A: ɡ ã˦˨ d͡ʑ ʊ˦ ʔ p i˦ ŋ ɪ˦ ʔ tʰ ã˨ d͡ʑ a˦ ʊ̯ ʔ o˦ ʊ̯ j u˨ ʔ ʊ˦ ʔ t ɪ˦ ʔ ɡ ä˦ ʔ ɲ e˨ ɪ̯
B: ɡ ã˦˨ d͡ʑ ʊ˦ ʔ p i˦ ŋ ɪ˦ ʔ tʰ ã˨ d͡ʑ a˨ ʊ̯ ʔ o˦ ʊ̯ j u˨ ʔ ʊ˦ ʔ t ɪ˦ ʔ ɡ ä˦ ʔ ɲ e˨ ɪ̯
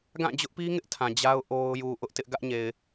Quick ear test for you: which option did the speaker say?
A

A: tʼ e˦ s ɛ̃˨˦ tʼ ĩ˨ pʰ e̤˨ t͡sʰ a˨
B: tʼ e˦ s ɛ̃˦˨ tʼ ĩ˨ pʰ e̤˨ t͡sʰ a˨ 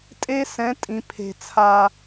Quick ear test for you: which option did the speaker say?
A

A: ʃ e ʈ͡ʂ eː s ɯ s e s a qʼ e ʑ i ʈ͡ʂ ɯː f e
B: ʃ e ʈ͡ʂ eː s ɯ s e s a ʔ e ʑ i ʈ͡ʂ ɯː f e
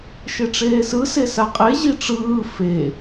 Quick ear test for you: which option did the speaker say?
A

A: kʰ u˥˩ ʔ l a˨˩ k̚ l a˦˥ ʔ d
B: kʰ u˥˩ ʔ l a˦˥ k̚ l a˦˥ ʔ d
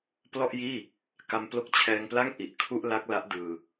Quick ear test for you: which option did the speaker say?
B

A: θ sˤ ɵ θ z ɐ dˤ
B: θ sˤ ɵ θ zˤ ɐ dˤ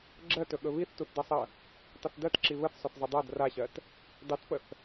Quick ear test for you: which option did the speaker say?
B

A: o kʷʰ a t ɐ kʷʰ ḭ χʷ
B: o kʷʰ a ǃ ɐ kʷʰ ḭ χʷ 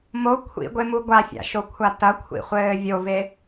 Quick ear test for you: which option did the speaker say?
A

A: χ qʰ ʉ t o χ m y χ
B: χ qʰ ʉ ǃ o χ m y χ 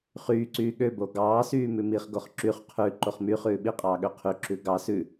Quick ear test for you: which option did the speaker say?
B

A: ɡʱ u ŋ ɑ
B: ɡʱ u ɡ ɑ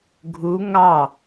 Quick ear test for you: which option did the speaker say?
A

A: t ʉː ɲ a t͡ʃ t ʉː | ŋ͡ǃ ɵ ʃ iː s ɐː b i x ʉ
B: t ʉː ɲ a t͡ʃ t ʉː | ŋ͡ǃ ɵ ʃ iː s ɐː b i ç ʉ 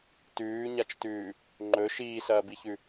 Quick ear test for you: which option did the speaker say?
B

